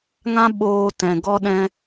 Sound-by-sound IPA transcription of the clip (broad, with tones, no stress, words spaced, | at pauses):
ŋã˦ ɓoː˧ tɛ̃˨ɡɔ˦ ɗɛ̃˦